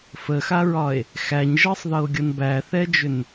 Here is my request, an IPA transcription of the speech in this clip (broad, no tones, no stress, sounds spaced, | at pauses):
f ə x a ɹ ɒ e̯ | x æ ɲ ʒ ɤ sˤ ð ɤ o̯ ɡʲ ɤ n b æ θ ɛ d͡ʒ ʏ n